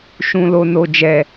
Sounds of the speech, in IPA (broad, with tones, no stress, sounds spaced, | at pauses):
ʃ ũ˨ l o˨ n o˨ d͡ʒ ɛ˨